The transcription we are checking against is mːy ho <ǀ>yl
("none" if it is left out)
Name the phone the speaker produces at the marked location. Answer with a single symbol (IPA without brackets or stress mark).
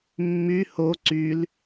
ǀ